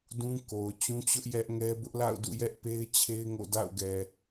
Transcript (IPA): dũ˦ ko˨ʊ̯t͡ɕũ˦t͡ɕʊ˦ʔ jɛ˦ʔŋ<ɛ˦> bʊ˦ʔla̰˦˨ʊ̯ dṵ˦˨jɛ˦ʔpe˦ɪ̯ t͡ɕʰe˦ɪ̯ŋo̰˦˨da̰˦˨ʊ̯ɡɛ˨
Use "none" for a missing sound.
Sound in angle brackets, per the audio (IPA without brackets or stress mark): ɛ˦